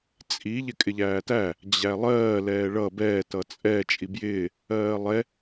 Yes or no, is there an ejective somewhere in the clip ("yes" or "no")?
yes